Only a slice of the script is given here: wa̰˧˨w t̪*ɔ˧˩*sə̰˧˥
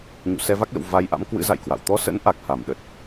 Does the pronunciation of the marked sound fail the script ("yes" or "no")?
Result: yes